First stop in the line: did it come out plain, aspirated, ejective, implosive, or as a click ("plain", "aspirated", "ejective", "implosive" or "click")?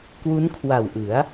plain